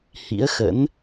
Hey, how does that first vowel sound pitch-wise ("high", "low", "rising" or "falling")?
rising